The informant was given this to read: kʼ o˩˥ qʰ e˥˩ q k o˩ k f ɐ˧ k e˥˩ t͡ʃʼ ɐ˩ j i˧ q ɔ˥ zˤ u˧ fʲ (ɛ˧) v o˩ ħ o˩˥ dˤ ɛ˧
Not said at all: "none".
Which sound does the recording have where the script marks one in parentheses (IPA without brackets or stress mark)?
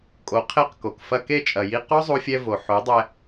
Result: ɛ˧